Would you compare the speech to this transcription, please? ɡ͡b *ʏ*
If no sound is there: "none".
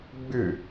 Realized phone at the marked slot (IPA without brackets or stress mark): ʏ